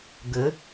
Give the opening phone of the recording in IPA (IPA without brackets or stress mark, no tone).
ɡ